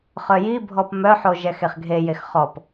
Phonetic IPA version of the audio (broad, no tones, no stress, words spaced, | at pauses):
χœjibʱɔp mœħo ʒɛxeχɡʱejex χɔp